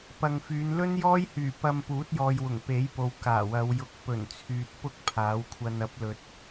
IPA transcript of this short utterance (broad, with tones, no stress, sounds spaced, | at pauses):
p ɐ˨ ŋ f yː˨˧ n l ɵ˥ n j ɔː˥ j h yː˨˩ p ɐ˧ m p uː˨˥ t̚ j ɔː˨ j w ʊ˨˩ ŋ p e˨˥ j p o˨ w k aː˨˩ w ɐ˨˧ w j ʊ˨˥ k̚ p ɵ˨˩ n t͡sʰ yː˨ t̚ p ʊ˥ k̚ pʰ aː˨˥ w kʷʰ ɐ˧ n ɐ˨˥ p̚ l ɵ˨ t̚